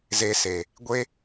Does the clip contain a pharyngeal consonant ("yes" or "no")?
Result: no